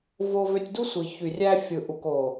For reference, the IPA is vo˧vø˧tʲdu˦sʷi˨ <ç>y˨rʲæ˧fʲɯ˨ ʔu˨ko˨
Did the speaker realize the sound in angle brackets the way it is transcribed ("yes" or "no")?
yes